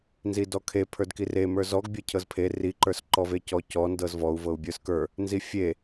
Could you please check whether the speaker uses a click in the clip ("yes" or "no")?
yes